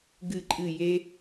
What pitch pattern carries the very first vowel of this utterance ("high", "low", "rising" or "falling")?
falling